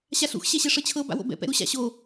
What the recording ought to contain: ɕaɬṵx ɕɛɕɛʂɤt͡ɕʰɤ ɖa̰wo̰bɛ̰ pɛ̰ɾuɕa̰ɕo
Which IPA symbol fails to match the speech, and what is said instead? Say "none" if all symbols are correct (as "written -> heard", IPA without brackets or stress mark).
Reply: ɖ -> b